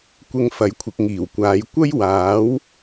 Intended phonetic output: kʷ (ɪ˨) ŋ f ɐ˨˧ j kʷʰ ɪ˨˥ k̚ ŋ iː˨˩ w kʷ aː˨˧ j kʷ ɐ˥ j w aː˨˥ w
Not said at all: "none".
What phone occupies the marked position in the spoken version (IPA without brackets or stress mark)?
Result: ɪ˧